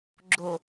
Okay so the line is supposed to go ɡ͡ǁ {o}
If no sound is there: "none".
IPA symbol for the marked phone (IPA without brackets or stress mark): o